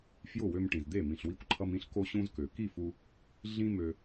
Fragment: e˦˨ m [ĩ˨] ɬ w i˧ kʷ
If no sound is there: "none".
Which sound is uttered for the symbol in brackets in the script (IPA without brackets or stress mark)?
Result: ĩ˨